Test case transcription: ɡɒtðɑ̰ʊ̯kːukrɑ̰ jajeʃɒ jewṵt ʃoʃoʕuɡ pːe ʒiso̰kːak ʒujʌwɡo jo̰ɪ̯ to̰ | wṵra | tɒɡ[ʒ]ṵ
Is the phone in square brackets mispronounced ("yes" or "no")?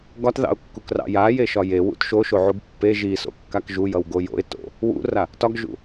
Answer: no